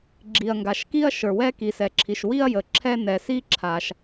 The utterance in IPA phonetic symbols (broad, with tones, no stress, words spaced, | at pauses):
ɡ͡ǁi˩ɐ̯ŋɡa˩ʃki˥ɐ̯ ʃə˞˩wɛ˥ki˩sɛ˩ ǁʰi˩ʃwi˥ɐ̯jə˩ ǁʰɛ˥nɛ˩ si˥ǁʰa˩ʃ